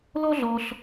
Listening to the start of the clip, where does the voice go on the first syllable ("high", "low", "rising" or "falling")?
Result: high